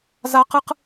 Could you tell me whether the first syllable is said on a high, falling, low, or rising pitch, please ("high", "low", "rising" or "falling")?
high